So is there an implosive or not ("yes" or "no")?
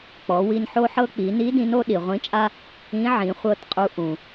yes